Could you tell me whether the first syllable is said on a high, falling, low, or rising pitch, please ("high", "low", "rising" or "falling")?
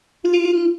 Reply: high